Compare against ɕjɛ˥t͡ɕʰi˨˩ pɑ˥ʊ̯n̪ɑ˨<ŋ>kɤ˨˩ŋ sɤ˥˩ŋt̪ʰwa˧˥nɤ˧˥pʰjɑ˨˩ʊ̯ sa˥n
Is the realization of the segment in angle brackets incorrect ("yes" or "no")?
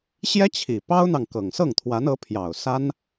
no